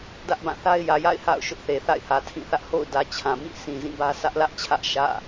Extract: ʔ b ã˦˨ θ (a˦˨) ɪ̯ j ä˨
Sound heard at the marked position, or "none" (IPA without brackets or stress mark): a˦